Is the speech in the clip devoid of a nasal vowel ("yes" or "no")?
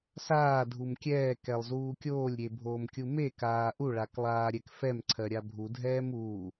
yes